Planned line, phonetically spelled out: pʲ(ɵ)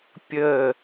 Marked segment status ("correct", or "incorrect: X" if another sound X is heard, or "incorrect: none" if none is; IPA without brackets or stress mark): incorrect: ə